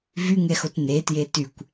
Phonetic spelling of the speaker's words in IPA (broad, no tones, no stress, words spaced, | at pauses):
vyŋɛxot netje tykʷ